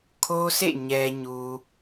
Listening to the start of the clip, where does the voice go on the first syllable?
high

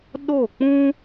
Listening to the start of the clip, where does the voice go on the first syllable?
falling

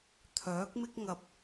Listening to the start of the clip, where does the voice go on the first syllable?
rising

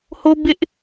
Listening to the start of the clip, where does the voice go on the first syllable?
high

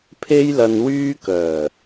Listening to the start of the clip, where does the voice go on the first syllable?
high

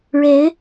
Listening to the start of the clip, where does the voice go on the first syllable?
rising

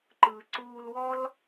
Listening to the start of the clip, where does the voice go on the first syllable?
low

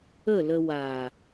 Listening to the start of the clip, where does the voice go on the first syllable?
falling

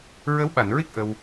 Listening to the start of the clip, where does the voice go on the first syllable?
rising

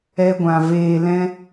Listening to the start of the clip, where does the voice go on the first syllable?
high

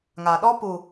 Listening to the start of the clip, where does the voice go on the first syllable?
low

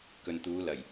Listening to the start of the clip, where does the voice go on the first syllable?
low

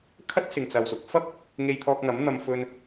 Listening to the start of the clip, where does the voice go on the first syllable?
high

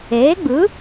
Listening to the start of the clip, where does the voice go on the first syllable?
rising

